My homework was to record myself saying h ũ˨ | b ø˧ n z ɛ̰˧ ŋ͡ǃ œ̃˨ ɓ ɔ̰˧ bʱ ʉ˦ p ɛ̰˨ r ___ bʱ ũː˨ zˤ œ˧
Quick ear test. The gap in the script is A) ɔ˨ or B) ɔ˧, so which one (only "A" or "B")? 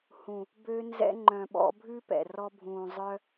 B